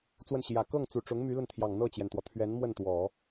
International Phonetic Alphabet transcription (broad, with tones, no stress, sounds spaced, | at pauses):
t͡s w ə˥˩ n ɕ j ä˨˩ k ɤ˥˩ ŋ t͡s u˨˩ ʈ͡ʂ ʊ˧˥ ŋ m y˧˥ l ə˥˩ n t̪ʰ j ɑ˨˩ ŋ n̪ ɤ˥˩ t͡ɕ j ɛ˩ n t̪ w ɔ˩ t̪ʰ ɥ ɛ˧˥ n m w ə˥˩ n t̪ w ɔ˨˩˦